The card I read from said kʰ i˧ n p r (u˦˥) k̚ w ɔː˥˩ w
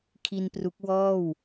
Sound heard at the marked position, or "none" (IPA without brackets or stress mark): u˦˥